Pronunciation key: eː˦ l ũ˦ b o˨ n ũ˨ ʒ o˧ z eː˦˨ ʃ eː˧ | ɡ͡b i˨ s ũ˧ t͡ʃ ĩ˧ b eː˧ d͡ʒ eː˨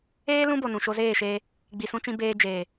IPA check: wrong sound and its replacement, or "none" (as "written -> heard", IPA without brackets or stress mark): ʒ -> ʃ